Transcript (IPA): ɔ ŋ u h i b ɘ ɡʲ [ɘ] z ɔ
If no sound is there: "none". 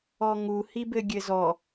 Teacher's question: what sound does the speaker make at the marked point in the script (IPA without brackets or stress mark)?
ɘ